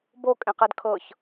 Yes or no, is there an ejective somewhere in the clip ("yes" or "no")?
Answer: yes